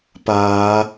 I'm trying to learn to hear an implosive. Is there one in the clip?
no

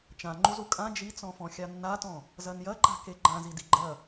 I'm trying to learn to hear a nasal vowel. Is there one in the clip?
yes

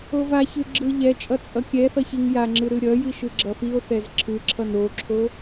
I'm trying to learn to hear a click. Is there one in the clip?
yes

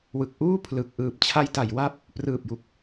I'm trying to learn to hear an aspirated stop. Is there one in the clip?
yes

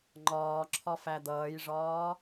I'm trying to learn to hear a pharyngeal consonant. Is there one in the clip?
no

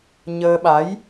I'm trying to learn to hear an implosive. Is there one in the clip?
yes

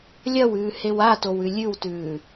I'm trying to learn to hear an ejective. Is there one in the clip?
no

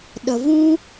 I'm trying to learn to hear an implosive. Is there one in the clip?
yes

